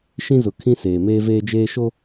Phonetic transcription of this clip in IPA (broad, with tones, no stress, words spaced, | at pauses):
ʃĩ˦zʊ˨ kʰĩ˦seː˨meː˦ veː˦d͡ʒeː˦ʃo˦